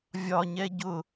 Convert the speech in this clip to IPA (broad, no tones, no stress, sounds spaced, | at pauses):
vʲ ɒ ɲ ɛ ɟ ʊ